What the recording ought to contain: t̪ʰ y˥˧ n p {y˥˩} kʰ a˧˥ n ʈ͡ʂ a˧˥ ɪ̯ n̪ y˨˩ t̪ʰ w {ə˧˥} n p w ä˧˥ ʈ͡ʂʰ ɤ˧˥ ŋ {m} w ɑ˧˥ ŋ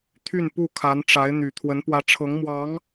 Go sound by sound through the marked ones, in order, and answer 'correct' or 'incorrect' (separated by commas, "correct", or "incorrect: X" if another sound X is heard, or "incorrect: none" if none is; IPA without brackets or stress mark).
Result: incorrect: u˥˩, correct, correct